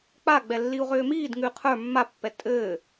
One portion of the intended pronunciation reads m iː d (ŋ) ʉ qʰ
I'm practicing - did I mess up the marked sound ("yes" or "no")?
no